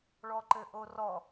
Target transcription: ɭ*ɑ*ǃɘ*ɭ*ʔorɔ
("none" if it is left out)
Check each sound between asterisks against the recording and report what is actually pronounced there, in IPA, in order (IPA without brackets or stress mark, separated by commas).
ɔ, none